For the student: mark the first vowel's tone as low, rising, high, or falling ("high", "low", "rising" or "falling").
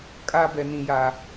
high